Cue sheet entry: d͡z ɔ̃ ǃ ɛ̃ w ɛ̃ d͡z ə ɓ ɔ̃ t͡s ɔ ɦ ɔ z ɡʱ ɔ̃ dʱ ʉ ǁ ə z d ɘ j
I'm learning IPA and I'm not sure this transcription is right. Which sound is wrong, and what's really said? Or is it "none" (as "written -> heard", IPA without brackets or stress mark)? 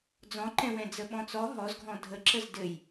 ʉ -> ə